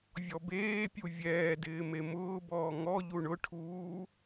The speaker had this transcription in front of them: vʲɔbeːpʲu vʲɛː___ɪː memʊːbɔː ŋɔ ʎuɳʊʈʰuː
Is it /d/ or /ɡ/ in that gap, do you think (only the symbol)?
d